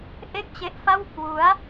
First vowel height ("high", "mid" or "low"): mid